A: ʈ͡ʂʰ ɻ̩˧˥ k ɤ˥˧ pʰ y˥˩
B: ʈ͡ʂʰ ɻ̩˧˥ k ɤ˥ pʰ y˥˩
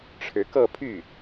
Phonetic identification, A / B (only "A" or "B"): A